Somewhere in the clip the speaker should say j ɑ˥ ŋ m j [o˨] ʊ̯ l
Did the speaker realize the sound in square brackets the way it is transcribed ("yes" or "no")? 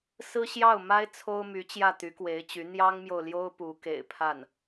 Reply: yes